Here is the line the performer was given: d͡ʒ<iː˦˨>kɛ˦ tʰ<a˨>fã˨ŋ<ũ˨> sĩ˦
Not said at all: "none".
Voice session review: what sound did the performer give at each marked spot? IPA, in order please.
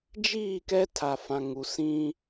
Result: iː˦˨, a˨, u˨

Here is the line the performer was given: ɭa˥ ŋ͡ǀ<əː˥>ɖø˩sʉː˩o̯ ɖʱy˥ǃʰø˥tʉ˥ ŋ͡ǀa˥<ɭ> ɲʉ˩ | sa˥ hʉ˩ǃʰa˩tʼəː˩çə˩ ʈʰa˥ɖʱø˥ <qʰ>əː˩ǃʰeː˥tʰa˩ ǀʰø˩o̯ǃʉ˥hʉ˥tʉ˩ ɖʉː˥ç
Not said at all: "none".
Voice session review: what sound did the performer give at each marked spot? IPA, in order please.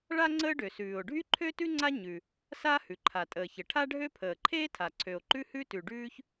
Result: əː˥, none, pʰ

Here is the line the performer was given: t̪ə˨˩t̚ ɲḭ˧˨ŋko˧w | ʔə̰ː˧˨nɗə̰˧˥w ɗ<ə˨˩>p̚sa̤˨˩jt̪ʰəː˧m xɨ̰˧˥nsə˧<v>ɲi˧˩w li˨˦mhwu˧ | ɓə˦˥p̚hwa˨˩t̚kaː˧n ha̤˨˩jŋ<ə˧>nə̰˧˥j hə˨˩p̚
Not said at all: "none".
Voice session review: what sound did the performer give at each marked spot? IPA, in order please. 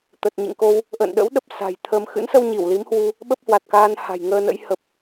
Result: ə˦˥, w, əː˧

